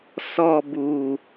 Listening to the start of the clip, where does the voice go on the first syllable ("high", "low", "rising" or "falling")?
low